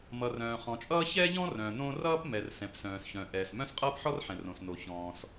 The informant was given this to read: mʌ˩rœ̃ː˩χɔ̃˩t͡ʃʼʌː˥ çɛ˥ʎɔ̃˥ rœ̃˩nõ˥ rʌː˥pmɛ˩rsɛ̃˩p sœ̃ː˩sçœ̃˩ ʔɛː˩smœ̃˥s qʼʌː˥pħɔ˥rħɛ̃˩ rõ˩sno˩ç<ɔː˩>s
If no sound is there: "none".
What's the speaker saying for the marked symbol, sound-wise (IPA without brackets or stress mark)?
ɔ̃ː˩